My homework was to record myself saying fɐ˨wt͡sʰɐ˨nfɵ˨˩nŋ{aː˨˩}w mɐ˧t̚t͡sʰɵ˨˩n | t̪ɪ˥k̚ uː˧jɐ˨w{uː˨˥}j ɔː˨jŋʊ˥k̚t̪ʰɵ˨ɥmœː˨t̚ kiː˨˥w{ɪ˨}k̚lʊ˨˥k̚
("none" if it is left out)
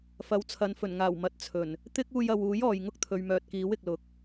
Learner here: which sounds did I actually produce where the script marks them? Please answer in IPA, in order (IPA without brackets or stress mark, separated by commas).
aː˨˩, uː˨˥, ɪ˨